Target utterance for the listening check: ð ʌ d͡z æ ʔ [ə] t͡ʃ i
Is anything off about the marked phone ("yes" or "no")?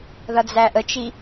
no